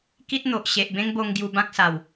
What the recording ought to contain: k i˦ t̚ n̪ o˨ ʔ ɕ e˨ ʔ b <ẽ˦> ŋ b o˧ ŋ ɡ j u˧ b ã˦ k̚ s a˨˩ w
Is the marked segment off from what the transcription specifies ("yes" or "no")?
no